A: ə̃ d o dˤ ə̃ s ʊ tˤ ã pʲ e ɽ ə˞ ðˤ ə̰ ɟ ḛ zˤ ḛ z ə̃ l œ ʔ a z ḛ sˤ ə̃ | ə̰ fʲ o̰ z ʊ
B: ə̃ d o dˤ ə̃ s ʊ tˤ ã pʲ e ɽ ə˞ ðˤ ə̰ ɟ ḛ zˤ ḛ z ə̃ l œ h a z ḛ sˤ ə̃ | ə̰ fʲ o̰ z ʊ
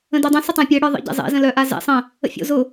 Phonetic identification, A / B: A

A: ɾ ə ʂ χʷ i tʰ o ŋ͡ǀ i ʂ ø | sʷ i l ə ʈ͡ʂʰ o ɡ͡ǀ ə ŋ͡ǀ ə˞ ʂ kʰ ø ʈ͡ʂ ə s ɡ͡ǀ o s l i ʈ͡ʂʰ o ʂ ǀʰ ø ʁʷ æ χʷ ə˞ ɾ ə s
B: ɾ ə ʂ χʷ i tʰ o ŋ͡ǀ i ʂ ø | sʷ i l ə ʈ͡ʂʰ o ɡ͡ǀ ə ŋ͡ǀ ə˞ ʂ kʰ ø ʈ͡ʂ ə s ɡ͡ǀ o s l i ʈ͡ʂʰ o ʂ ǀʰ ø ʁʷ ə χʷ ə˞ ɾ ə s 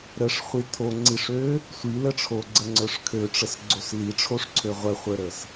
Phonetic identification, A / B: B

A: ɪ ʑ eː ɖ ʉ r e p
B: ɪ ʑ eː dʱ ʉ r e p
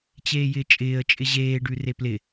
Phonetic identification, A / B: A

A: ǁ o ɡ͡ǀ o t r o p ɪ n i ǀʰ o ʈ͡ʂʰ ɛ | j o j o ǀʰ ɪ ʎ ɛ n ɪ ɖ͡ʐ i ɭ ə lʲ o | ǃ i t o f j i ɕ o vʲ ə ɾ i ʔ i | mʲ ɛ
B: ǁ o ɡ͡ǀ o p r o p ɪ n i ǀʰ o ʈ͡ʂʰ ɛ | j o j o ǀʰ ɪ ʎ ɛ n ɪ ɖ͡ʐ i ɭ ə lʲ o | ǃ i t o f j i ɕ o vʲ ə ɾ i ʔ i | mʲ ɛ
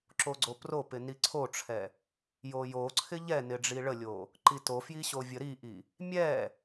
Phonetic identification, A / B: B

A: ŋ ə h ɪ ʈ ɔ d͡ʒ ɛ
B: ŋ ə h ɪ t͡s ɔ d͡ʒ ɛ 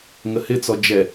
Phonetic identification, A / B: B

